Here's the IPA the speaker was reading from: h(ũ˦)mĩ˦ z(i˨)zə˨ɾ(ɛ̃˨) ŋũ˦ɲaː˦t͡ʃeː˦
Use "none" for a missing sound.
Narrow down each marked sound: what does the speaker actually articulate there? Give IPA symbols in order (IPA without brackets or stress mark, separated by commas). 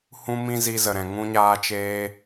ũ˦, i˧, ɛ̃˨